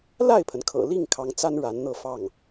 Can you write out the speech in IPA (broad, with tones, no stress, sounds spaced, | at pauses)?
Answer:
l a˥˩ ɪ̯ pʰ ə˩ n kʰ ɤ̰˨˩ l i˥˩ ŋ kʰ ɑ˧˥ ŋ t͡s a˥ n ɻ a˧˥ n n̪ ɤ˥˧ f ɑ˥˩ ŋ